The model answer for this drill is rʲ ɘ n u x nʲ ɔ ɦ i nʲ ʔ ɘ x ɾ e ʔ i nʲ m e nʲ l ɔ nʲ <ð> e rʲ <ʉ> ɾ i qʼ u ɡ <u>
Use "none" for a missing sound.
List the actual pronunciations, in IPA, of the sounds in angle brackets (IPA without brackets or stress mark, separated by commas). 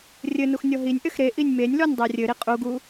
dˤ, ɘ, u